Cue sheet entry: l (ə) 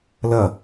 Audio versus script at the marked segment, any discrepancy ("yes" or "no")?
yes